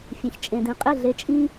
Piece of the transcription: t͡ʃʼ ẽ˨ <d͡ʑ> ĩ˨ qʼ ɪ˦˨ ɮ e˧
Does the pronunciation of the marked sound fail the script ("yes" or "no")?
yes